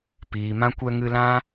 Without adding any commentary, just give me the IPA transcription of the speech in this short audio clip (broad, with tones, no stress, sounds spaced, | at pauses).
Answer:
p iː˨ m ã˧ kʷ ɛ˧ ŋ ɨ˧ l ã˦